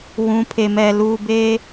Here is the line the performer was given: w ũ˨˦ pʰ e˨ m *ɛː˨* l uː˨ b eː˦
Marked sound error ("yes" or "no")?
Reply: yes